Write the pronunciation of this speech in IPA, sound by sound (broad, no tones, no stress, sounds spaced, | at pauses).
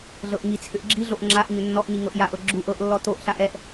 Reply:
ɮ ɤ ʔ ŋ i t͡sʰ ʏ ʔ ɡ͡ǁ i ɮ o ʔ ŋ͡ǁ a ʔ ɲ ʏ nː ɔ ʔ ɲ i ŋ ɤ ʔ j a ʔ ɤ ɡ͡ǁ u ʔ ɤ ʔ lː ɔ t o ʔ ɬ a ʔ ɛ ʔ